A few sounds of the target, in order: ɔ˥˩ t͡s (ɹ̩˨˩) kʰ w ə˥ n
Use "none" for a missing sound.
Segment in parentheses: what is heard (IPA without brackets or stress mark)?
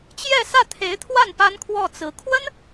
ɹ̩˧˥